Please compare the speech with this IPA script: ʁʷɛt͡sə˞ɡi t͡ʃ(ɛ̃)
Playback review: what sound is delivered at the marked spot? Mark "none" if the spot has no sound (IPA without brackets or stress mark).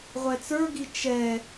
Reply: ɛ